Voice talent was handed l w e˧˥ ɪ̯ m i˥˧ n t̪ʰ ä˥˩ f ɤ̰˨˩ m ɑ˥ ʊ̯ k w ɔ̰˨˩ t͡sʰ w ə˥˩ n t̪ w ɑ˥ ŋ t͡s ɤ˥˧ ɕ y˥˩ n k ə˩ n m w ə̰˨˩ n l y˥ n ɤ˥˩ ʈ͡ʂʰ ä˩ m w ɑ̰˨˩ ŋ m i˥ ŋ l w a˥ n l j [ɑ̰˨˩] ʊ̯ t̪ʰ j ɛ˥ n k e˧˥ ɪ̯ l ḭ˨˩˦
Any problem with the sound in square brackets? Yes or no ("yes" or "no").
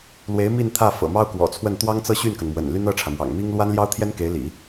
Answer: yes